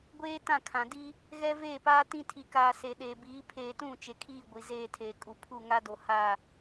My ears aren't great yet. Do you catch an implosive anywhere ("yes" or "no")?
yes